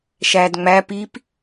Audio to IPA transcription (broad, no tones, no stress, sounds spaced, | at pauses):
ʃ æ d ŋ͡m æ p i p